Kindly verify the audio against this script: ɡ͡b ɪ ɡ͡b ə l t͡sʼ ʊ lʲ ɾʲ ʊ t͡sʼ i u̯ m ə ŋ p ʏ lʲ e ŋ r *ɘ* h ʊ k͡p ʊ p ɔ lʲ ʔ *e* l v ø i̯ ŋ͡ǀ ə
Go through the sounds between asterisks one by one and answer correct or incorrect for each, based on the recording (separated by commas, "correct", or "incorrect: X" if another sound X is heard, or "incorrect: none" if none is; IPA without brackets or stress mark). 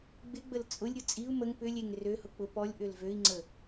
incorrect: ø, incorrect: ø